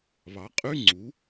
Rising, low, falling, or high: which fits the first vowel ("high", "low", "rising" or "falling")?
rising